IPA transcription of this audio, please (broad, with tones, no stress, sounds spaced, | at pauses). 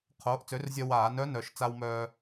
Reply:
qʰ oː˩˥ ʔ t͡s ø˩˥ r zʲ œ˧ w aː˧˩˧ n œ˧˥ n œ˨˩ ʃ t͡s a˧ w m œː˧